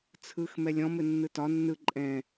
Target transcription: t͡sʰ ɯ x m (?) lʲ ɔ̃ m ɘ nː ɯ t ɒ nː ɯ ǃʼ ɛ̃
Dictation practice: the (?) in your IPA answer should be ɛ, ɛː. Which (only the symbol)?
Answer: ɛ